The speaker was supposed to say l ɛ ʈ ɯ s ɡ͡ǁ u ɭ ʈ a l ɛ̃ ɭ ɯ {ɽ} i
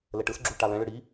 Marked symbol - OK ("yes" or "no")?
yes